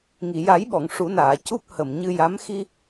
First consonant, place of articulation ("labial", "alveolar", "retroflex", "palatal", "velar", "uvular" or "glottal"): velar